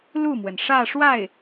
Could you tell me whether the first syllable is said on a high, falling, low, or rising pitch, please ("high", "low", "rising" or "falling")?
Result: falling